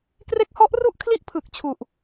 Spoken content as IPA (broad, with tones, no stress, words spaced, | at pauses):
kre˦˥k̚hɔ˦˥ʔru˥˩ʔ kʰli˥˩ʔpʰɯ˨˩k̚ t͡ɕʰu˨˩ʔ